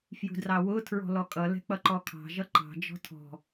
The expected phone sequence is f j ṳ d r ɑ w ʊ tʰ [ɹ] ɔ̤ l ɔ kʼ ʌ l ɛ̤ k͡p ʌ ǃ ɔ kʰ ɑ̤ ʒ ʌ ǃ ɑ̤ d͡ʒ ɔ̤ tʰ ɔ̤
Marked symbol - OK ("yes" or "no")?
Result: yes